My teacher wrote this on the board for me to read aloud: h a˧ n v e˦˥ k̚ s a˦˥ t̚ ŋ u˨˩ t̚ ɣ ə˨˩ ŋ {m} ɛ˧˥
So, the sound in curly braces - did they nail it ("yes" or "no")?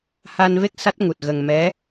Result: yes